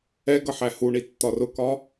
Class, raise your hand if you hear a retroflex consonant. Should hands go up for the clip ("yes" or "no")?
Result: yes